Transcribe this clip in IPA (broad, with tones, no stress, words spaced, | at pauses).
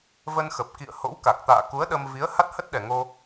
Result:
və˧nxə˨˩p̚kḭ˧˨ə̯ho̰˧˥w ka˨˩k̚t̪a̰ː˧˨ ku˨˦ə̯ɗə˧mvi˨˦ə̯ ha˦˥t̚hə˦˥t̚ɗɛ˨˩ŋo˧